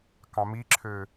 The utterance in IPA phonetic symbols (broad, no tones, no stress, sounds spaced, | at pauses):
k ɑ̃ m i ǁʰ ø